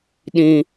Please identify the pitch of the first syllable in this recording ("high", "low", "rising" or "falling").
high